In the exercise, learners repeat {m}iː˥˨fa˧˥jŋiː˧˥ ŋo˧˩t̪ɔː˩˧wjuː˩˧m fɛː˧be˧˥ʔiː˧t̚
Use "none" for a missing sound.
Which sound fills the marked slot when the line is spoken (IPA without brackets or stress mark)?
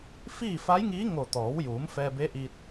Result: f